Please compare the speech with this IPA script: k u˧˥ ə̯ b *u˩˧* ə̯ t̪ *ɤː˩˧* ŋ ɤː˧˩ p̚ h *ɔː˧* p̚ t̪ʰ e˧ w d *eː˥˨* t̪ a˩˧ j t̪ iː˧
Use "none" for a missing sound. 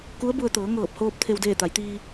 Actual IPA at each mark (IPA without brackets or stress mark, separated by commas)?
u˧, ɤː˩˧, oː˧, eː˥˨